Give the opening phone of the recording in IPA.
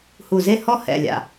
h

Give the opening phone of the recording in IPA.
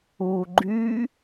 u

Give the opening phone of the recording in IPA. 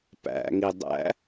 p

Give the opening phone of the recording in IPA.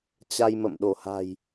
t͡ɕ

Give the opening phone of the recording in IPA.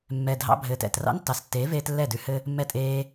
mː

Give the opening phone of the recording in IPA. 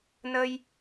n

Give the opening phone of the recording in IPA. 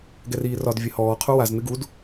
ɡ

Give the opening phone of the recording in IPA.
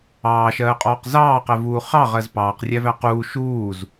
ɑː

